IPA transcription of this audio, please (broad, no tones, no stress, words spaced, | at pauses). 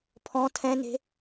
pʰɔ̃ tʰɛ̃ne̤